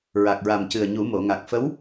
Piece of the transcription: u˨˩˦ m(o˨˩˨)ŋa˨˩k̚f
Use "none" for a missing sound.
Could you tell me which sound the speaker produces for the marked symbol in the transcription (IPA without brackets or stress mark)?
o˨˩˨